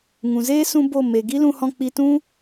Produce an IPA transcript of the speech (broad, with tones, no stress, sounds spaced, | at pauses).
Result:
ŋ ũ˨ z eː˦ s ũ˦ b o˦˨ m e˨ ɡ i˦ l ũ˧ h ɔ̃˧ k͡p i˧ t ũ˦